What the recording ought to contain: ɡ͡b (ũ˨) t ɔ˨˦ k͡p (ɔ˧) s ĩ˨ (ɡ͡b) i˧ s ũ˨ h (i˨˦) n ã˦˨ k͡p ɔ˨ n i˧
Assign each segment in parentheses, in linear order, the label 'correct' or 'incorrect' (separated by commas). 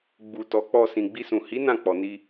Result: incorrect, correct, correct, correct